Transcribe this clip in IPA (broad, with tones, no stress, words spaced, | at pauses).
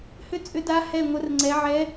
hʏ˥˧t͡sʼʏ˦˥da˦˥ hɛ˥˧ŋʷə˦˥rŋ͡ǀɛ˦˥ ʕɛ˦˥